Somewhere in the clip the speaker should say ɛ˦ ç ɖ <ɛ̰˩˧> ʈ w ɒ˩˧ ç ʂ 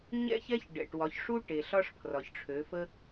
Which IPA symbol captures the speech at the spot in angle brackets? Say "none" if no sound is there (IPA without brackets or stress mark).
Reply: ɛ̰˩